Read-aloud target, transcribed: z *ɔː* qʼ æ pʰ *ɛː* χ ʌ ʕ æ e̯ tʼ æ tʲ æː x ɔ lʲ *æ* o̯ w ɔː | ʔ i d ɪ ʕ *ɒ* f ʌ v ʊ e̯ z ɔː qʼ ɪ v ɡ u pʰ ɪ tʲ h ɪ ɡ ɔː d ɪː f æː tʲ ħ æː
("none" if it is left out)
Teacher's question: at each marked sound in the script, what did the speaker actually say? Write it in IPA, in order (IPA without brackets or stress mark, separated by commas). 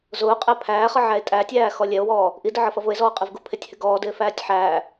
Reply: ʊː, æː, ɛ, ʌ